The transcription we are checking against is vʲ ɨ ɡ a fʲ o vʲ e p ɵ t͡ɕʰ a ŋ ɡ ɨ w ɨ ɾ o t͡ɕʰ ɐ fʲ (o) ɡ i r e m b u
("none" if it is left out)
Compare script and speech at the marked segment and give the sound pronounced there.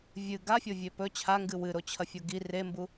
o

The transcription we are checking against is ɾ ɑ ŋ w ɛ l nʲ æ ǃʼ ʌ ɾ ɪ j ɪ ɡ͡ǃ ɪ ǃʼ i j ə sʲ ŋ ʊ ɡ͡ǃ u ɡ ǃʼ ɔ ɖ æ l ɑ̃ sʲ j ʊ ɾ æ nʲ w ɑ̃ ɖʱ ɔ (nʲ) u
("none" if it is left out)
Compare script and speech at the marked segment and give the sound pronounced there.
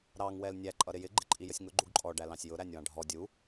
dʲ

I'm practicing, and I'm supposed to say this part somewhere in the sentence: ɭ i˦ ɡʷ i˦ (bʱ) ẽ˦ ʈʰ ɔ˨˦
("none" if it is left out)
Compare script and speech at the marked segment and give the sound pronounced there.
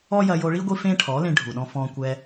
f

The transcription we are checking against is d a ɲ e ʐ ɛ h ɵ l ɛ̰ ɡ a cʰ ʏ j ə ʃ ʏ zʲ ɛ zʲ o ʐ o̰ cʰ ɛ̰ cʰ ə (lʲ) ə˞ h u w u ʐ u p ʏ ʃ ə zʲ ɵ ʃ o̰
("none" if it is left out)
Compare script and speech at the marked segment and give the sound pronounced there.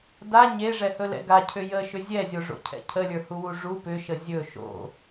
lʲ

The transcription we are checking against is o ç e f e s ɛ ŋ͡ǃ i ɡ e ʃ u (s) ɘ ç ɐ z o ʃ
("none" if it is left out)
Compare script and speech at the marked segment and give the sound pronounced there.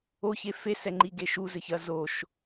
z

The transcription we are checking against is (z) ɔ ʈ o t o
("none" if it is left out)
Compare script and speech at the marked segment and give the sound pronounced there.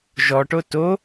ʒ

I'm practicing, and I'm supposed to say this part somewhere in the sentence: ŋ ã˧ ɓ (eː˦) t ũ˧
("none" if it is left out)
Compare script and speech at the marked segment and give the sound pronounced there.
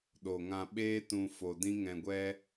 eː˦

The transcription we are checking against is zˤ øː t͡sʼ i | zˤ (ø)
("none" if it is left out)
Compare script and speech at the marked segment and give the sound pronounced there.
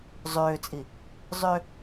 ø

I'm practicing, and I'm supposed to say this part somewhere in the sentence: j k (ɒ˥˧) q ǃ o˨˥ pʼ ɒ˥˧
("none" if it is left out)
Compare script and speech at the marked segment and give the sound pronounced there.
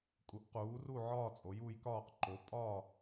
ɒː˥˧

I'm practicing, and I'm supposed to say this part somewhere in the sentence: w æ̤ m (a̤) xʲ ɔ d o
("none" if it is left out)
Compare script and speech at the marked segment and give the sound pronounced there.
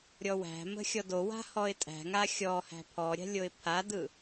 ə̤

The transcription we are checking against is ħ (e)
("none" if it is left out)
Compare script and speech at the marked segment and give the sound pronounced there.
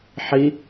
i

